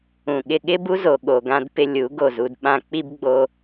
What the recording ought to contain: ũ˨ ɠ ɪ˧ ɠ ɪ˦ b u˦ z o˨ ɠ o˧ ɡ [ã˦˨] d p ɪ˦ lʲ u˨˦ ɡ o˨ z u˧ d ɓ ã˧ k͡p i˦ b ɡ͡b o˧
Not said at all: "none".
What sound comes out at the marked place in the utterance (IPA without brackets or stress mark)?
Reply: ã˦